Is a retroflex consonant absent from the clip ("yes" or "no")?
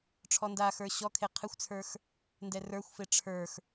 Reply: no